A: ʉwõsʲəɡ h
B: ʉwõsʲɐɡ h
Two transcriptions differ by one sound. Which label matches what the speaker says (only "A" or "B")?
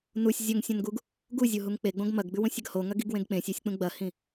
B